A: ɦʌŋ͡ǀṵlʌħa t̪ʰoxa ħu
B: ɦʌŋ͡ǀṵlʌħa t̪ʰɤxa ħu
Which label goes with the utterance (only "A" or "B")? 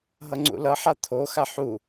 A